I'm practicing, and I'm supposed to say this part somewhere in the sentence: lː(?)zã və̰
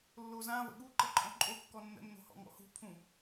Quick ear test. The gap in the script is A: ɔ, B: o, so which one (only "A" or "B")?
B